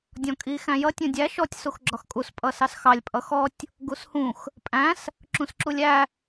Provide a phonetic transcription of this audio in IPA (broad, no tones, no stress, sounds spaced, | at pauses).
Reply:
dʲ ɔ̃ kʼ i x æ̃ j ʌ tʲ ũ dʲ æ ʃ ɔ tʲ s u x ɡ͡ǁ ɒ x kʼ u s pʼ ʌ s ɑ s x ɑ lʲ pʼ ʌ x ɔ tʲ | ɡ u s h ũ x | pʼ æ̃ s | ǁ ũ s ǁ u lʲ æ